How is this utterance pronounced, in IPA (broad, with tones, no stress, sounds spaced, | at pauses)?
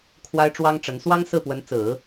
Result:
kʰ w a˥ ɪ̯ ʈ͡ʂ w ɑ˥ ŋ ʈ͡ʂ ə˧˥ n s w ɑ˥ ŋ s ɹ̩˥˩ p w ə˧˥ n t͡s ɹ̩˨˩˦